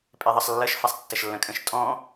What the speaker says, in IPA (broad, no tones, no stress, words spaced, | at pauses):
pʼeðˤʌsˤlːʌʃ fasˤtːɐʃlːɐ̃kʼə̃ʃ tʼɔ̃